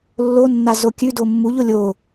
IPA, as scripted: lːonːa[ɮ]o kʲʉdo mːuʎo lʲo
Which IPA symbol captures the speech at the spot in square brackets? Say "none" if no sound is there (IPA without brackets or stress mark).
z